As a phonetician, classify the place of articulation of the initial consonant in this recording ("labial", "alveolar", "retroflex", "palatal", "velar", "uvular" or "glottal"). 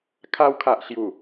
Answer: velar